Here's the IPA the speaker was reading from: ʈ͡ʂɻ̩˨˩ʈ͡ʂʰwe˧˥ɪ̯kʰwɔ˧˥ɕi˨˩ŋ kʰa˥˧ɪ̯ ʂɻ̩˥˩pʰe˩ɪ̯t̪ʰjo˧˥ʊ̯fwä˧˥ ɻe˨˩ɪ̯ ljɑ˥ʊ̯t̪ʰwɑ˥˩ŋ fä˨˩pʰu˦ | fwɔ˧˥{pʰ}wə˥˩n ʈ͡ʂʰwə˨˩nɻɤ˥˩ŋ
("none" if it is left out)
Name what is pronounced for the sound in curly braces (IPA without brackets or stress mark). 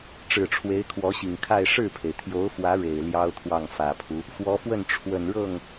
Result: f